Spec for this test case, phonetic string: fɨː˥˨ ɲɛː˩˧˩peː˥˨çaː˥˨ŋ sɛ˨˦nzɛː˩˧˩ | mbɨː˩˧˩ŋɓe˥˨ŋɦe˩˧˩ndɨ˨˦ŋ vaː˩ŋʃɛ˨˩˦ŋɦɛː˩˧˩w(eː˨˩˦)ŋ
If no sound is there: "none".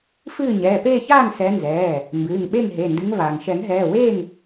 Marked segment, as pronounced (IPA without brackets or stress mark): eː˥˨